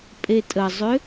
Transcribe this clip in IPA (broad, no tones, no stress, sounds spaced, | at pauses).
pʼ e tʼ ə zˤ ʏ